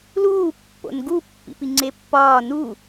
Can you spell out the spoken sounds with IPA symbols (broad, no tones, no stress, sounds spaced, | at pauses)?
l uː pː o̰ n ɡ u pː ḭ p i ŋ͡ǀ e pː ɒː n u